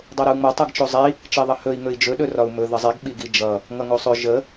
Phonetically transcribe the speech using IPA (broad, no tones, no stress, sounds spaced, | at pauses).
dˤ o ɾ ə u̯ ŋ͡m ʌ tˤ ʌ ɡ t͡ʃ o zˤ i | t͡ʃ i ðˤ ʌ h ɵ i̯ ŋ ɵ i̯ d͡ʒ ɵ ɗ ɵ r ɒ u̯ m ɵ ð ə zˤ i ɡ ɓ i ɡ i d͡ʒ ʌ | ŋ ʌ ŋ o sˤ ɵ ʒ ə